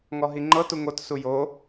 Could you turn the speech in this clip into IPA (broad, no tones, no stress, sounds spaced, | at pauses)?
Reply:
ŋ ɔ ɦ i ŋ͡ǃ ɤ t u ŋ o t s u j o